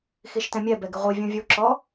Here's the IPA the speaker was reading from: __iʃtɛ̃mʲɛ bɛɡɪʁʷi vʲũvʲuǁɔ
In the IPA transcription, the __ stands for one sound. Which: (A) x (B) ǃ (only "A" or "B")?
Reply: A